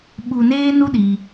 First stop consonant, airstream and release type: implosive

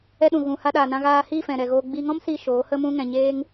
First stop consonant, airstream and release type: implosive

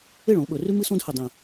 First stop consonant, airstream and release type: implosive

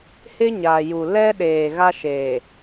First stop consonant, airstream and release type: implosive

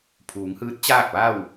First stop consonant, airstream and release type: aspirated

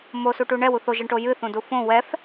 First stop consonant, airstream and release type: plain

